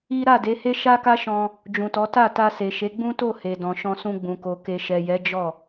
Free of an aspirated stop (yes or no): yes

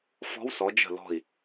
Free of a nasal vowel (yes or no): yes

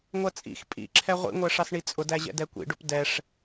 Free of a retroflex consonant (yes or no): no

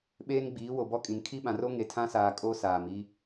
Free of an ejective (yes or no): no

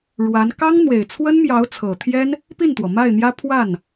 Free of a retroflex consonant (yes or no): no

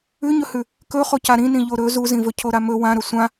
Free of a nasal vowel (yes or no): no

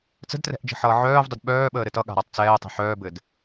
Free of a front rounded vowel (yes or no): no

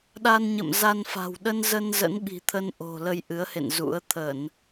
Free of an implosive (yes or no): no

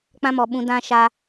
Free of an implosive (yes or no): no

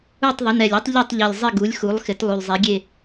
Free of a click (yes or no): yes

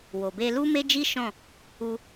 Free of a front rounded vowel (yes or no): yes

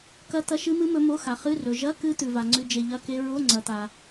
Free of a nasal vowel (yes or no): yes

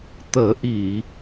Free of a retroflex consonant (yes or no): yes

